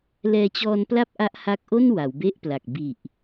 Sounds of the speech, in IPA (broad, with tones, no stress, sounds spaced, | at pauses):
l ɛː˧ t͡ɕ ɔː˧ n p l a˥˩ p̚ ʔ a˦˥ ʔ h a˦˥ k̚ ʔ o˥˩ n w a˩˦ w b e˥˩ ʔ p l a˨˩ k̚ b i˨˩ ʔ